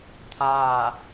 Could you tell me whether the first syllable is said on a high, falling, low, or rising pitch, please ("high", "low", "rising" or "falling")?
falling